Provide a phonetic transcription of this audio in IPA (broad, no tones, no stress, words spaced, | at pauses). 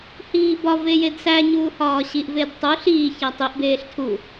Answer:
hiːbɒve jedsæɲuː hɒːɕiʔved tˤu ɬiːçæ tˤiʔbeːɬ tʰu